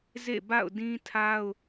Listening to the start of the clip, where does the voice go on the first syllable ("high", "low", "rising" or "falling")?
falling